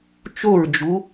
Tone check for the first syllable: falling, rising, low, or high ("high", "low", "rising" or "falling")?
falling